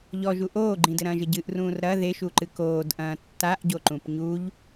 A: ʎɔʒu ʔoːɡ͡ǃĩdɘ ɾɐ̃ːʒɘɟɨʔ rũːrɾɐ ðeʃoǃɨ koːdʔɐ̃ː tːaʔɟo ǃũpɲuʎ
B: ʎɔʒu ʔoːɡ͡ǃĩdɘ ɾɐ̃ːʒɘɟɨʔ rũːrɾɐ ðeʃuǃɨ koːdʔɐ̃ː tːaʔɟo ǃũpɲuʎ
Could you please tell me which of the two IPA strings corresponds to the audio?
B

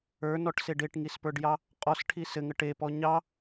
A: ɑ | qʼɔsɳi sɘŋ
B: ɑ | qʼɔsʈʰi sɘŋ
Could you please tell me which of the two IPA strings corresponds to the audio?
B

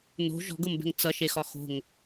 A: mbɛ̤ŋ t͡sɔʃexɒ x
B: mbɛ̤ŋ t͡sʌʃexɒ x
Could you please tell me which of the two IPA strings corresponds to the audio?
B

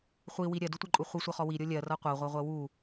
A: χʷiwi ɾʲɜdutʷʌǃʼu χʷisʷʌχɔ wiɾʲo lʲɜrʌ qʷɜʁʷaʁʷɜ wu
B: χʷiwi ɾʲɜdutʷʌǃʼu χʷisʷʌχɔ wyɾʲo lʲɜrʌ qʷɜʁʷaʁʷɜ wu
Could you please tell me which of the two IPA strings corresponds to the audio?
A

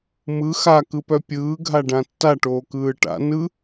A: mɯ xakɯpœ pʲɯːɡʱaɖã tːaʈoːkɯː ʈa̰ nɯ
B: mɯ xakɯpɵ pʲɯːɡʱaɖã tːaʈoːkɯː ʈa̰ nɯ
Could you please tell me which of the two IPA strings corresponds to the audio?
A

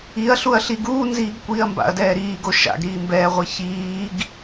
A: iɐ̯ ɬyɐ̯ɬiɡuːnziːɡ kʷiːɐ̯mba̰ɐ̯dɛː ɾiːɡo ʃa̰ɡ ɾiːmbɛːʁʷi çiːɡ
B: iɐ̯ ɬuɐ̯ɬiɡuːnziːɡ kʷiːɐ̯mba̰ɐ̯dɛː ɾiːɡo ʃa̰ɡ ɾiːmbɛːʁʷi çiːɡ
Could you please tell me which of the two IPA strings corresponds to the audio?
B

